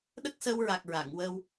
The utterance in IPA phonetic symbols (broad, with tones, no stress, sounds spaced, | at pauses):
ɗ ə˦˥ k̚ s əː˧ w ɹ a˨˩ k̚ ɹ a˨˩˨ ŋ w əː˧ w